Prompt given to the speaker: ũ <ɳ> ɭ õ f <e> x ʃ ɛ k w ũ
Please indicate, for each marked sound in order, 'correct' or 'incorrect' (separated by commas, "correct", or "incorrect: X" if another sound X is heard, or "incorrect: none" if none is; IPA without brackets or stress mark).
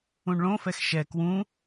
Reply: correct, incorrect: ɛ